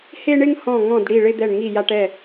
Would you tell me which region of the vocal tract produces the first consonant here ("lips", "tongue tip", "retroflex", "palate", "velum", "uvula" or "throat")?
throat